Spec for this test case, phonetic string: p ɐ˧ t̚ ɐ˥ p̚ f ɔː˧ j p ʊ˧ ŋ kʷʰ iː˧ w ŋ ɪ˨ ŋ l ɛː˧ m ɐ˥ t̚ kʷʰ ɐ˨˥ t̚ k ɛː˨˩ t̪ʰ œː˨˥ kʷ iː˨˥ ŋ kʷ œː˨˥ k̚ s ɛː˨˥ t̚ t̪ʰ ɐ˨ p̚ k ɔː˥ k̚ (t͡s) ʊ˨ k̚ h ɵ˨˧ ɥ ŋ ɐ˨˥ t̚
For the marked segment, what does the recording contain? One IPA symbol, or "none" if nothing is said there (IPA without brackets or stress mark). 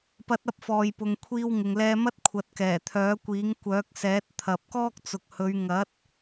t͡s